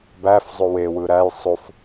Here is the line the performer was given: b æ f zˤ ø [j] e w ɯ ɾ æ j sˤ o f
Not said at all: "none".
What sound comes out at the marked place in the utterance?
w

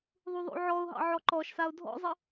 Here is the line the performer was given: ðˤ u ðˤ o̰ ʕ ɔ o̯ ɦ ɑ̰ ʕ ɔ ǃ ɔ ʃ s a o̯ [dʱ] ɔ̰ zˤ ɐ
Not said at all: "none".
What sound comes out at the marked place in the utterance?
dʱ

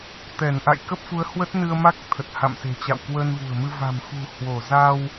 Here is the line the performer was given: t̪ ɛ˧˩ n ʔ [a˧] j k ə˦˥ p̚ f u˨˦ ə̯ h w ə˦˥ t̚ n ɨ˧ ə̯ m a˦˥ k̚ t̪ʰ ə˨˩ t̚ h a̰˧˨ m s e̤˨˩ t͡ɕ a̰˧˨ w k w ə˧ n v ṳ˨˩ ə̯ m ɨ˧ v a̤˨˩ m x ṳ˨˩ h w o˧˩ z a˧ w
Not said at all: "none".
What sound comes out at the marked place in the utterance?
a̰˧˨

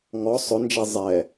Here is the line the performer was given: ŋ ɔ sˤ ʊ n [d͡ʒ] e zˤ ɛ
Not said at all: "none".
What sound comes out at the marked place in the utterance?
d͡ʒ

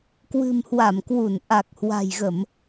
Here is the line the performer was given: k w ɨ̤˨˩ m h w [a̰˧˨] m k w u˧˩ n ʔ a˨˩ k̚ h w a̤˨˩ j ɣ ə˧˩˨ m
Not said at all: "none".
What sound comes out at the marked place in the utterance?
a˧˩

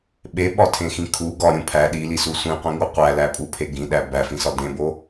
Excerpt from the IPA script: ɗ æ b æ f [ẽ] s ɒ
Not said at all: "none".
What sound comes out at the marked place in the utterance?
ĩ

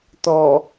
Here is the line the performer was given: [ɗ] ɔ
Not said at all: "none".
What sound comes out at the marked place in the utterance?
t̪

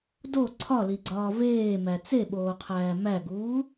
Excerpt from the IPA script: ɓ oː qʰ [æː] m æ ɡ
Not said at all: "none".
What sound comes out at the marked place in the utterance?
æː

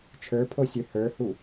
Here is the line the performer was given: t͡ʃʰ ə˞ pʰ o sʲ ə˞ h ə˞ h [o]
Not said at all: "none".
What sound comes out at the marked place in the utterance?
u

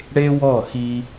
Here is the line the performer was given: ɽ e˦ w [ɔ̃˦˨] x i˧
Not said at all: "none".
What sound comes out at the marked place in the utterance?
ɔ˦˨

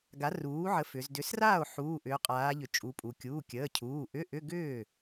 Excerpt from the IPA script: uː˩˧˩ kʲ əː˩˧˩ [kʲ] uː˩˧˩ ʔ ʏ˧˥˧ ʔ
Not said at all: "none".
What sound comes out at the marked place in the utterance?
cʰ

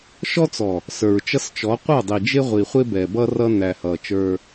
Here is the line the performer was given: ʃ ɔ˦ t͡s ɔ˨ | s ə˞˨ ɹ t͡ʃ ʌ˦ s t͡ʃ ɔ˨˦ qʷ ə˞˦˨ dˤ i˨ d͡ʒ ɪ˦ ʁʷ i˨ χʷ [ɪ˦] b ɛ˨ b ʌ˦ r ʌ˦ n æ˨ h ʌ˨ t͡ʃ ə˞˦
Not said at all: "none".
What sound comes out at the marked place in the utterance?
ɪ˦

